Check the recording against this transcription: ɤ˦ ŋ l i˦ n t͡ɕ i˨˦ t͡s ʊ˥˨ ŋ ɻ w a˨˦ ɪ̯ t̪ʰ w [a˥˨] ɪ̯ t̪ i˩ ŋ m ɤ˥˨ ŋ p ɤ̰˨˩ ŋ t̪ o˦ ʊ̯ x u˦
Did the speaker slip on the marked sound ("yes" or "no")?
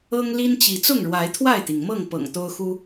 no